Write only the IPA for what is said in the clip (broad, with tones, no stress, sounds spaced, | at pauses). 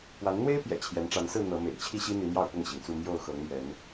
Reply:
p w a˨˦ n n̪ w e˦ ɪ̯ p j ɛ̰˨˩ t͡ɕʰ j ɛ˨˦ n ʈ͡ʂ a˨˦ n s ɹ̩˥˨ n̪ ɤ˨˦ m ḛ˨˩ ɪ̯ t͡ɕʰ i˥˨ ɕ i˦ n̪ i˨˦ m j ɑ˥˨ ʊ̯ p ʊ˥˨ ŋ ɕ i˩ ŋ t͡s u˥˨ m j o˥˨ ʊ̯ x ɤ˨˦ ŋ m ɥ ɛ˨˦ n